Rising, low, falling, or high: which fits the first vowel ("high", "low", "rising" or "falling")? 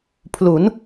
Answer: rising